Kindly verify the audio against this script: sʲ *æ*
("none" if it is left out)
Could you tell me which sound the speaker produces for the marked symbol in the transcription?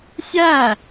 æ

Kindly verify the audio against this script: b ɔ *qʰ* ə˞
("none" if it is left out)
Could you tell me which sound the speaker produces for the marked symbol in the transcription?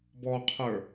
qʰ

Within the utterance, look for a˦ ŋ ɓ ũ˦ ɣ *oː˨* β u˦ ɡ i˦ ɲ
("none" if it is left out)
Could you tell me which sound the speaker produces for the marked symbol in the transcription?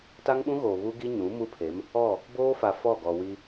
oː˨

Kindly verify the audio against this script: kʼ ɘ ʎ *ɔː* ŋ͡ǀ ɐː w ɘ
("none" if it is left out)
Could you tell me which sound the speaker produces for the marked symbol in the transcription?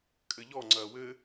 ɔ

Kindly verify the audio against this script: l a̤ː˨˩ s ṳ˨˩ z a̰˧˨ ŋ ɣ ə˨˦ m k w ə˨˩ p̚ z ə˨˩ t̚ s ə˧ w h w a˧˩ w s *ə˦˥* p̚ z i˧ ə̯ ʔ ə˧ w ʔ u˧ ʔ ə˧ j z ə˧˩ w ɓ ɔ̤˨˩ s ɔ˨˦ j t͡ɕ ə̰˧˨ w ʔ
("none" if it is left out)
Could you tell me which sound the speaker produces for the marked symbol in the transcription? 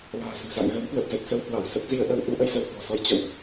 ə˦˥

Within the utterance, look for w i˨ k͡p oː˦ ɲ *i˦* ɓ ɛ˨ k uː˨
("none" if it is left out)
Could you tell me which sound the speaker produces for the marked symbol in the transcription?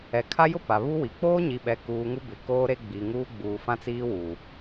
i˨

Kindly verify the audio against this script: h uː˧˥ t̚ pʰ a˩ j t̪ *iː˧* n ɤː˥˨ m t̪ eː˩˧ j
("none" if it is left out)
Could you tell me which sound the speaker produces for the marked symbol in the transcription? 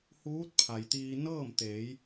iː˧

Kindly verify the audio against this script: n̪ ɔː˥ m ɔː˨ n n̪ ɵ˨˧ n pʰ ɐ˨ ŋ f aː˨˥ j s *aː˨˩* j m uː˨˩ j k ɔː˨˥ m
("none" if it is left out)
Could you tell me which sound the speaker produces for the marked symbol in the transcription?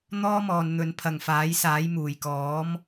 aː˨˥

